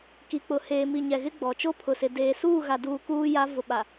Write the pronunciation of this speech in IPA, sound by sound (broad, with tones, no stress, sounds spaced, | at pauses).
k i˨ k͡p ʊ˨ h eː˨ m i˨ ɲ ɛ˨ ɣ ɪ˦ ɡ͡b ɔ˨ t͡ʃ o˦ pʰ ʊ˨ s ɪ˨ d eː˨ s uː˦˨ ɣ a˨ d uː˨ k uː˦ j a˦ v ʊ˨ ɓ a˨